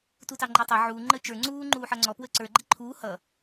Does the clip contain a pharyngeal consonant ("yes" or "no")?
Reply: yes